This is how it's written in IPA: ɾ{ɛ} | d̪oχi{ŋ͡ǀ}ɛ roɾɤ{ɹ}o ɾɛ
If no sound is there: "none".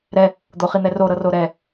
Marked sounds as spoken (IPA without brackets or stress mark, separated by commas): ɛ, n̪, r